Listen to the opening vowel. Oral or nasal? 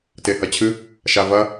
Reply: oral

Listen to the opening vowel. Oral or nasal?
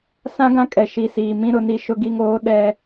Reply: nasal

